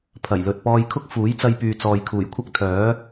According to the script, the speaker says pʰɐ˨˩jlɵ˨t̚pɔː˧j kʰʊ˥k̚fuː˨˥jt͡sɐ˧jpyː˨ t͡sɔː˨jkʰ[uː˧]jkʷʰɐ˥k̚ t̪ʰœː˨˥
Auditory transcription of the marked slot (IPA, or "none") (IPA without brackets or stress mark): uː˨˩